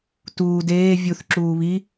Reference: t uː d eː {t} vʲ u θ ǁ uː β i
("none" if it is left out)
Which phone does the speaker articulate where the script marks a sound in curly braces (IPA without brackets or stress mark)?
none